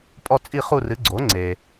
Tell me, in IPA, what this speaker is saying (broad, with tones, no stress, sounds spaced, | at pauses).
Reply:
pʼ ɔ˥˧ t͡sʼ i˥˧ χ u˥˧ r ɨ˨˥ ɡ͡ǀ o˨˥ ŋ͡ǀ e˨